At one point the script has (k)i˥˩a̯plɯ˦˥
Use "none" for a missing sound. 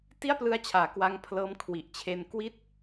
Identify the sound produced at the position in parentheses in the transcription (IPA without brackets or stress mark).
t